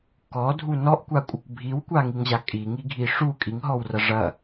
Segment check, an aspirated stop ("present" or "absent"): absent